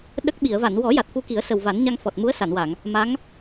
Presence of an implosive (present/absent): present